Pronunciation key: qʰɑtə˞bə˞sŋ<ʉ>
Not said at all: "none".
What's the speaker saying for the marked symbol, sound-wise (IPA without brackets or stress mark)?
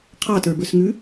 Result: ʉ